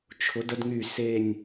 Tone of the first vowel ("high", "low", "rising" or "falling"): rising